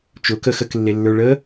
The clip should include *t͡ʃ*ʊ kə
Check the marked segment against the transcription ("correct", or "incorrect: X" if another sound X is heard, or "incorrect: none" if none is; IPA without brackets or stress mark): correct